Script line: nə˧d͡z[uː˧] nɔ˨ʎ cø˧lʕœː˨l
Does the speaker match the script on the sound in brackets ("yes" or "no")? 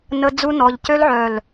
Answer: no